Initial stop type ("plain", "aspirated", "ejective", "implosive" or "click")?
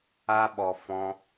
implosive